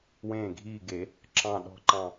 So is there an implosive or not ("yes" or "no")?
yes